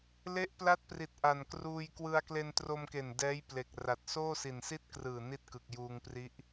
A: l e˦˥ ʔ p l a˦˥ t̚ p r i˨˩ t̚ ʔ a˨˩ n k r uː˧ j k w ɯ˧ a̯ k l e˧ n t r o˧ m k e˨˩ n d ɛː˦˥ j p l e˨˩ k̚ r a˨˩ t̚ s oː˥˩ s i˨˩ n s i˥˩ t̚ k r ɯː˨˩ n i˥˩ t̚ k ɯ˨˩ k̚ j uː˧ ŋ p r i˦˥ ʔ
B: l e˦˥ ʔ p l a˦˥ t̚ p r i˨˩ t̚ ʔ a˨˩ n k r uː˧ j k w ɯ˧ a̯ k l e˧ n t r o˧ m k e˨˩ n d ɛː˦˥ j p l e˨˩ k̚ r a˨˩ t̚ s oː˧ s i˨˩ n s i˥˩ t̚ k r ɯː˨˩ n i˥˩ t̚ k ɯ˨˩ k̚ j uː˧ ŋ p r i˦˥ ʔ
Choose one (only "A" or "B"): A